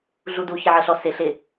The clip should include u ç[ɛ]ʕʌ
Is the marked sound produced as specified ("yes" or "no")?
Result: no